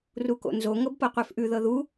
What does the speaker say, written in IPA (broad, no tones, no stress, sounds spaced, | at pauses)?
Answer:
r u k o̰ n z o ŋ ɤ b p ɤ qʷ ɛ f ʔ ʉ ð ɤ ð u